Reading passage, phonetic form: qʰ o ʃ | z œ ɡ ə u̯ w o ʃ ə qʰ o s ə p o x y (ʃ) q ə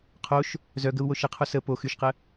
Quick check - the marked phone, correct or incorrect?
correct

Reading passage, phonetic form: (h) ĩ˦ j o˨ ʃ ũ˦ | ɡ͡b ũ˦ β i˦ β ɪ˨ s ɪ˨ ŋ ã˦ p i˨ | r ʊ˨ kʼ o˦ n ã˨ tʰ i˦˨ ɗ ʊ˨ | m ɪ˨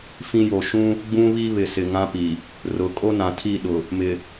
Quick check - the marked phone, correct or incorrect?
incorrect: f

